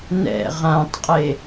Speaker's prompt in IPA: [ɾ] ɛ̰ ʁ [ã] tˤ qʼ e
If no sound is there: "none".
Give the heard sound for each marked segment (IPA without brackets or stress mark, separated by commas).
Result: n, ã